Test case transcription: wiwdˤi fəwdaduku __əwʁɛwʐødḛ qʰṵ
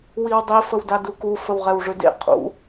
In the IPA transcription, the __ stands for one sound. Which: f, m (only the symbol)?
f